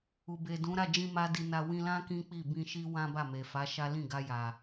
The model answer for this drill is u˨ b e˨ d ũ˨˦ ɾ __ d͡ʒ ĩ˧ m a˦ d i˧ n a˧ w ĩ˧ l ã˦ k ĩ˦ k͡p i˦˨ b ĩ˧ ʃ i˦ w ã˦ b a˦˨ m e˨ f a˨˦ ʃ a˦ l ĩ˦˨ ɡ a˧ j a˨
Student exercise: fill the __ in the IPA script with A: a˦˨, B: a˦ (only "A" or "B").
A